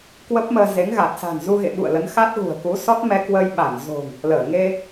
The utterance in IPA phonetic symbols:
k w ə˦˥ p̚ m əː˧ z e˨˦ ŋ ɣ a˨˩ t̚ s a̤˨˩ n z u˧ ɣ ḛ˧˨ ɓ ṵ˧˨ ə̯ l ə˨˦ n x a˦˥ t̚ ɣ ṳ˨˩ ə̯ k u˨˦ s ɔ˦˥ t̚ m ɛ˧ k w ə˧ j ɓ a˧˩ n z o̤˨˩ ŋ | l əː˧˩ ŋ e˧

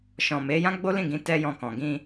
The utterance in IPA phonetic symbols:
ʃ ɔ̃˨ m e˨˦ j ã˦ ɡ͡b o˦ l ĩ˦˨ ɡ ĩ˨˦ t ɛ˦ j ɔ̃˧ k ɔ̃˨ ɡ ĩ˧

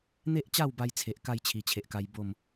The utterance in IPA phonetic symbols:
n̪ e˦ ʔ t͡ɕ a˥˧ w b a˧ j t͡sʰ e˨ ʔ k a˥˧ j t͡ɕʰ i˨˩ t͡ɕʰ e˨ ʔ k a˧ j b o˥˧ m

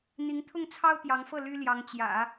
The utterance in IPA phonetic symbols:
n̪ i˧˥ ŋ t̪ʰ ʊ˥˩ ŋ t͡sʰ ɑ˥ ʊ̯ t̪ j ɑ˧˥ ŋ f ɤ˥˩ l y˥ l j ɑ˧˥ ŋ t͡ɕ j ä̰˨˩˦

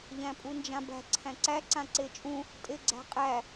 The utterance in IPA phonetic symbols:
ʎ æ̃ pʼ u n d͡ʒ ã b æ̤ ǀʰ æ̃ ǀ æ ǀ ã ǀ e t͡ʃʼ ũ | tʼ e ɡ͡ǀ æ̤ qʼ æ

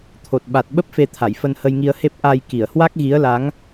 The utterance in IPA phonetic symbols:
t̪ʰ o˨˩ t̚ ɓ a˨˩ t̚ ɓ ə˦˥ p̚ f e˧ t̪ʰ a˧˩ j f ə˧ n h ə˧ j ŋ i˧ ə̯ h e˦˥ p̚ ʔ a˧ j k i˧˩ ə̯ h w a˦˥ k̚ ɣ i˨˦ ə̯ l a˨˦ ŋ

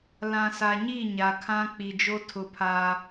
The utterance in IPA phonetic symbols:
l ã˨ s a˨ ɲ i˦˨ ɲ a˨ kʰ ã˦ k͡p i˨ d͡ʒ o˦ tʰ ʊ˦ pʰ aː˦

